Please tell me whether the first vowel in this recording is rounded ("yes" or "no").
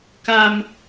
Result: no